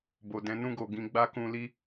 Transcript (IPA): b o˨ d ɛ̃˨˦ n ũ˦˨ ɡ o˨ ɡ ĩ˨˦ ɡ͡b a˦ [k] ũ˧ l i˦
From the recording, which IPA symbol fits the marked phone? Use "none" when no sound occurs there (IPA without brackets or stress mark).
k